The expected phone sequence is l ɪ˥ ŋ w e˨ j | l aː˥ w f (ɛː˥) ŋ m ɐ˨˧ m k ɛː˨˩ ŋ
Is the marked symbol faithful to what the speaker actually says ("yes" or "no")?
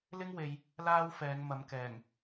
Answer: no